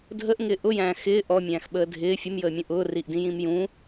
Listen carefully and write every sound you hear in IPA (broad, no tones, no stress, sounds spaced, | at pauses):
dʱ ə ʔ ŋ ɪː ʔ ʊ j æ̃ː x ɪː ʔ ɔ mʲ æ̃ː x ɓ əː dʱ ɪː fʲ ʊ m j əː mʲ ũ ʔ ʊː r i ʔ d ĩ j ĩ m j ũ